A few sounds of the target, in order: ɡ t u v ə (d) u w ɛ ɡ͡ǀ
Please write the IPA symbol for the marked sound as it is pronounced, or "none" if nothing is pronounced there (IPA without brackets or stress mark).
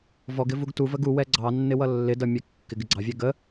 ɡ